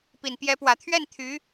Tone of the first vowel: low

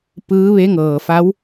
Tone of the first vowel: rising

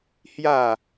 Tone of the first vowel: falling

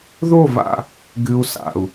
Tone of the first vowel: falling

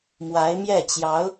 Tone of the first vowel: rising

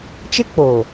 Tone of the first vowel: high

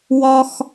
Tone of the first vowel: high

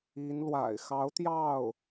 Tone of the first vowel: rising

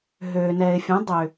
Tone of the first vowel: low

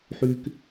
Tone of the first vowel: high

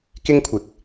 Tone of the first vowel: high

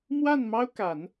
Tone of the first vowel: falling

